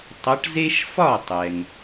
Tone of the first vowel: rising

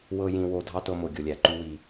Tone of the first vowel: low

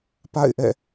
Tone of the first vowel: falling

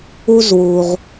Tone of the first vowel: high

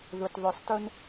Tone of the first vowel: low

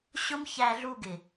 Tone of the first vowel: high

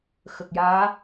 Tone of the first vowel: low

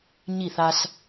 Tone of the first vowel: falling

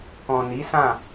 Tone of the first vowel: low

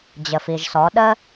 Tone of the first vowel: low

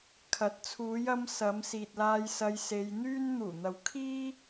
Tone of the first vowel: rising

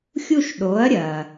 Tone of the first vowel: falling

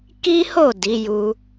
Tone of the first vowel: high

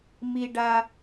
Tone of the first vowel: low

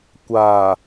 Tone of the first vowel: low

